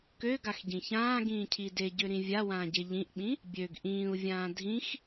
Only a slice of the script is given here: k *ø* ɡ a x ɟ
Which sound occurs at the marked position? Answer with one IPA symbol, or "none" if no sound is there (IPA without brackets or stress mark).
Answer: ø